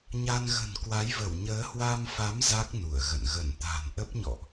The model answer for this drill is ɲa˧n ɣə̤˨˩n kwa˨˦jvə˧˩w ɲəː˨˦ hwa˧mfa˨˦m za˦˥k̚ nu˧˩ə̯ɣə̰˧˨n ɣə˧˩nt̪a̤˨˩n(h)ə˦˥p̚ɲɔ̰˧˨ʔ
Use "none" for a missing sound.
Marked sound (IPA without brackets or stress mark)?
ʔ